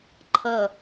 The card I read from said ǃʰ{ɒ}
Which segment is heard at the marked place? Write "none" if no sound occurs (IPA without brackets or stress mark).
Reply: ʌ